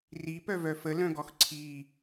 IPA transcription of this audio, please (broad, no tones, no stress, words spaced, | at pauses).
ripœvœ fəlœ̃ɡɔx ǀʰi